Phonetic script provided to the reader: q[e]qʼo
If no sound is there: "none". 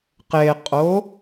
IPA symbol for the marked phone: e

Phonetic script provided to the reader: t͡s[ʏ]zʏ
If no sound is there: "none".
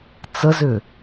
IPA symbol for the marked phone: ə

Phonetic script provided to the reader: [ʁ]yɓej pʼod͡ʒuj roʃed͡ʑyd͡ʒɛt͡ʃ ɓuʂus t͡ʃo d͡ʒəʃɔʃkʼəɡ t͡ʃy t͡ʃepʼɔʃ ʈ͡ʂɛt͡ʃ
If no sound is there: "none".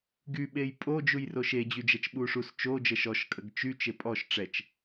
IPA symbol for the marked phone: ɡ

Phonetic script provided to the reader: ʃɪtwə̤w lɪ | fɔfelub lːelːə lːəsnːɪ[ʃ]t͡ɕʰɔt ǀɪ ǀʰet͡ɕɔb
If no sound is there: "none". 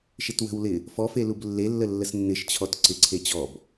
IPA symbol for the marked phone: ʃ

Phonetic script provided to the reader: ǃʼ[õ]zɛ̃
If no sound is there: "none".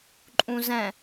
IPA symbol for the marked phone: ũ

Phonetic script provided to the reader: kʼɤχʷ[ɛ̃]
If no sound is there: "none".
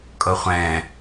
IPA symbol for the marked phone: ɛ̃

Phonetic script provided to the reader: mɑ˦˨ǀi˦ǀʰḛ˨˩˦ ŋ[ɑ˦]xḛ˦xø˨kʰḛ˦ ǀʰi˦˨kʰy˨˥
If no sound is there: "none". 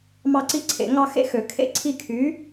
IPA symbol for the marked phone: ɑ˦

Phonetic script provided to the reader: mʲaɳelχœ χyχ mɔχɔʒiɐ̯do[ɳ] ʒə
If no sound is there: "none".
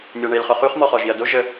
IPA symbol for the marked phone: none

